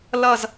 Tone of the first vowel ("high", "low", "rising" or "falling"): falling